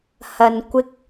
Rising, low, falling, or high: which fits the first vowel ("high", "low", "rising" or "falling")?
low